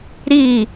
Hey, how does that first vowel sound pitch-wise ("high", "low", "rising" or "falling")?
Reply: falling